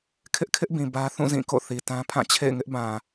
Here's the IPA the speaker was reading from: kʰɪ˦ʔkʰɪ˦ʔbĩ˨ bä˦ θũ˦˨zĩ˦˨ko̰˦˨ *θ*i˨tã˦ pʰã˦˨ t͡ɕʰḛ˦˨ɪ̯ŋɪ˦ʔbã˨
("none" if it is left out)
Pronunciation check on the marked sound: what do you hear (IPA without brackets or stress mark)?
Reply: θ